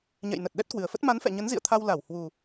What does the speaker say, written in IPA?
ɲ ɛ̰˧˨ j n ə˨˩ t̚ ɗ ɛ˦˥ t̚ k w ɨ˨˩ ə̯ f ə˦˥ t̚ m a˨˦ n f ɛ̰˧˨ ɲ ə˨˦ n z ḭ˧˨ ə̯ t̪ʰ a˧ w l a˧˩ w h w u˨˩

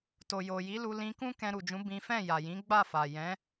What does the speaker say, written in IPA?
t o˨ j o˨ j i˨˦ l u˧ l ĩ˧ k ũ˦ k ɛ̃˧ ɾ u˨ d͡ʒ ũ˨˦ b ĩ˦ f ɛ̃˦˨ j a˨ j ĩ˨˦ ɡ͡b a˦˨ f a˨ j ɛ̃˨˦

